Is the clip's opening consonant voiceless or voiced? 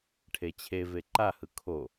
voiceless